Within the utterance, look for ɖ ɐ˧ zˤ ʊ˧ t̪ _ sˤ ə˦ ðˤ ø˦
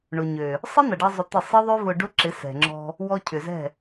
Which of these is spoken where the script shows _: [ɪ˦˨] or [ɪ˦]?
ɪ˦˨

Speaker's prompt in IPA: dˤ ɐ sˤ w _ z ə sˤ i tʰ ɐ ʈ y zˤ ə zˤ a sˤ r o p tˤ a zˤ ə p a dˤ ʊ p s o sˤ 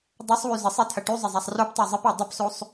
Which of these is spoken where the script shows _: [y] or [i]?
y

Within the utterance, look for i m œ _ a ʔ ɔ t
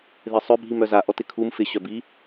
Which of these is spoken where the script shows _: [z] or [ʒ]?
z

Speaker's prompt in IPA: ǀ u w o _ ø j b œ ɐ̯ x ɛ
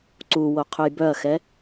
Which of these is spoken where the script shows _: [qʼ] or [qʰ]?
qʰ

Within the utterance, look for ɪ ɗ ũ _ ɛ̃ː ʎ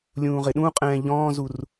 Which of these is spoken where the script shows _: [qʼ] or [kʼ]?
qʼ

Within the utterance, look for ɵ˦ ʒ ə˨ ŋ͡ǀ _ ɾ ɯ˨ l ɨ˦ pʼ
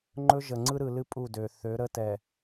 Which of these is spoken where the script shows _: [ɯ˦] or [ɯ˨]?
ɯ˦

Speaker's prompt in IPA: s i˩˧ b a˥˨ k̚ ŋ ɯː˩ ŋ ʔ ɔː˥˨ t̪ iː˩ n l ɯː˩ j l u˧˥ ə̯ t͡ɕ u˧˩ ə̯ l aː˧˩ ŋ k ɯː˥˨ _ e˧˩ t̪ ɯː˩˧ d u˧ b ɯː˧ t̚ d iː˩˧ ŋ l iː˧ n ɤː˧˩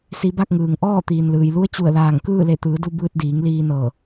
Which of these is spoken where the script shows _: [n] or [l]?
l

